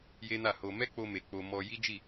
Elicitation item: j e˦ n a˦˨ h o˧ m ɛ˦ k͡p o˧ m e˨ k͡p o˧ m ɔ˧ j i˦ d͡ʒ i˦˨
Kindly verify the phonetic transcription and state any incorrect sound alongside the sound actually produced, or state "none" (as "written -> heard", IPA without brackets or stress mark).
none